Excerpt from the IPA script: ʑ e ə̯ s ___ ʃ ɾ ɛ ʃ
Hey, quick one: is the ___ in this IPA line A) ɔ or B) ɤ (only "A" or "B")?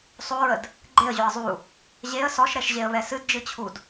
A